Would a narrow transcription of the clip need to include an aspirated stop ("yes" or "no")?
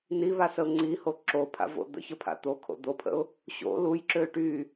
yes